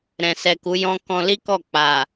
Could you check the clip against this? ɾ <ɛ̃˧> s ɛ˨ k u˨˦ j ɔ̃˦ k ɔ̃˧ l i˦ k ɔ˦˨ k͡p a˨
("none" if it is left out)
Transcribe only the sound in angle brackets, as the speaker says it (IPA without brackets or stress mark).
ɛ̃˨